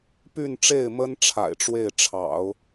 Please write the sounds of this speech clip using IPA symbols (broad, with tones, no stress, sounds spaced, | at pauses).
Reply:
p y˥˧ n ʈ͡ʂ e˥˩ ɪ̯ m ə˥ n ʈ͡ʂʰ a̰˨˩ ɪ̯ ʈ͡ʂ w e˥˩ ɪ̯ ʈ͡ʂʰ ɑ̰˨˩˦ ʊ̯